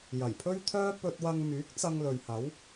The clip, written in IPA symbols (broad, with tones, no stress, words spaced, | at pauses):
jɐ˨˩jpʰɵ˥ɥt̪ʰœː˥ pɵ˧t̚wɐ˧ŋ myː˨˥k̚t͡sɐ˧ŋ lɵ˨ɥhɐ˨˥w